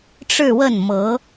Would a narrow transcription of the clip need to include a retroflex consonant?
yes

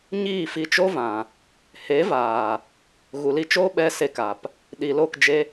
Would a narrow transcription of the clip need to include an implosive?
yes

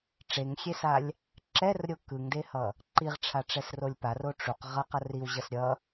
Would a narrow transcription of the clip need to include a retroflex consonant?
yes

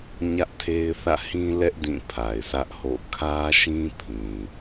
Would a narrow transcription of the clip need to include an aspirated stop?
yes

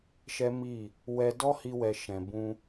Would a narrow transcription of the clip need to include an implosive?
no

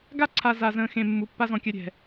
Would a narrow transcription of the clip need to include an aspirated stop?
yes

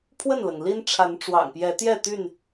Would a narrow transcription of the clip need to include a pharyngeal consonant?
no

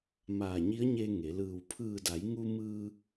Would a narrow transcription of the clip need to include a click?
no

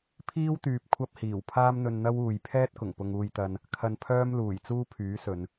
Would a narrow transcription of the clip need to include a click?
no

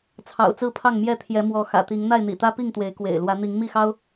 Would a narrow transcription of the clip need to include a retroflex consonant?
no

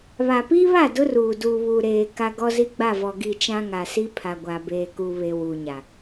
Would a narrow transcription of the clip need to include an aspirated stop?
yes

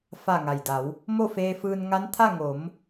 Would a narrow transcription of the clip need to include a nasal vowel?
no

